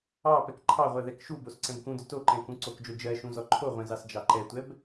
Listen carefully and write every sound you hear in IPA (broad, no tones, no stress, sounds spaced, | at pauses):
ɑ p ɛ k ǃʰ ɑ ʁʷ ɜ ð ɛ k ʃ u b o s ǀ ɛ̃ b k ũ d ʏ t o ǃ ɛ̃ k ũ ǀ o k d͡ʒ o d͡ʒ ɜ ʃ ũ z ɔ ǃʰ o ʁʷ ɛ̃ z ɑ s d͡ʒ ɑ ǃ ɛ tʷ ɛ b